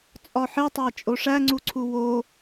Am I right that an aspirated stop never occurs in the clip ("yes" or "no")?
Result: no